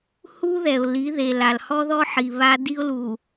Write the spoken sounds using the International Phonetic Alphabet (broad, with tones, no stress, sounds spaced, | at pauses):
h u˦ ð ɛ˨ ʊ̯ l i˨˦ ð e˨ l a˨ l h ɔ˦ ð ɔ˦ ħ i˨ β a˦ d i˦ ʊ̯ l u˨